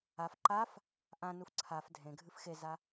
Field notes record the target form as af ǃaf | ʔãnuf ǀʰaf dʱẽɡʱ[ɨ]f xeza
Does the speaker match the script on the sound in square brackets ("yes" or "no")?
yes